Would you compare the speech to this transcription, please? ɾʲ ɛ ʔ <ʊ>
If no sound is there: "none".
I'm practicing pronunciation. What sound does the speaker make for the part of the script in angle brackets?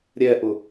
ʊ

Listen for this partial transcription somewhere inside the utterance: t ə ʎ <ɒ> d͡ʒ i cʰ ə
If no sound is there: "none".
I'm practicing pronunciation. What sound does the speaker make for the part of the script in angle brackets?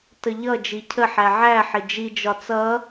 ʌ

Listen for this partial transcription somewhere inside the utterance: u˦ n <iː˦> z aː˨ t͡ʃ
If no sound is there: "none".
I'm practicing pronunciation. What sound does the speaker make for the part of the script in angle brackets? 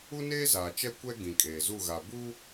eː˦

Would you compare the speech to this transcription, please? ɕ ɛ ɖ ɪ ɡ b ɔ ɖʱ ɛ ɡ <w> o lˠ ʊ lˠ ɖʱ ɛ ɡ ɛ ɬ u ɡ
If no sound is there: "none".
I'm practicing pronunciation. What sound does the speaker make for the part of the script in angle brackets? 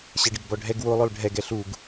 w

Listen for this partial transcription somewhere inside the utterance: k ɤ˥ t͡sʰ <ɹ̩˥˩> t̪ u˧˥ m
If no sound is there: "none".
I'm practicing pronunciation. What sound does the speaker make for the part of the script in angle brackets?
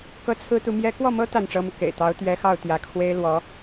ɹ̩˥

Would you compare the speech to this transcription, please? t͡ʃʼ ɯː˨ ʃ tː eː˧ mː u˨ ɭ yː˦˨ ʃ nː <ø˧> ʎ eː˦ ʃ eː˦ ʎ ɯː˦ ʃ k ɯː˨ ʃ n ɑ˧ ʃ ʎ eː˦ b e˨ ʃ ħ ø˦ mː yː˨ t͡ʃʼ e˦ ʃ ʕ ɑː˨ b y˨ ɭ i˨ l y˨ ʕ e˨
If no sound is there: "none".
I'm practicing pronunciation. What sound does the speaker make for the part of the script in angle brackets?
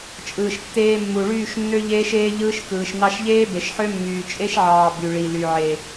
ø˦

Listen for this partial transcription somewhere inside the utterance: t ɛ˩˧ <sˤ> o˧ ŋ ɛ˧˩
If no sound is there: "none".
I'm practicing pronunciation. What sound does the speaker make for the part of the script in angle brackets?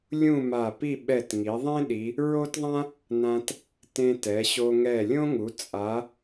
ɕ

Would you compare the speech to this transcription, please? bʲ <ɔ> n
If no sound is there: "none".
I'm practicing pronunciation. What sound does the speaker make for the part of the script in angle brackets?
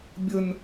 ə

